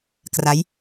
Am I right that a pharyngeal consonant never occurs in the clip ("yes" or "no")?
yes